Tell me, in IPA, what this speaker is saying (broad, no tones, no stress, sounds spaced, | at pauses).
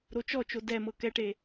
ɾ o t͡ʃ ɔ t͡ʃ o d ɛ m ɤ k ɛ ʈ e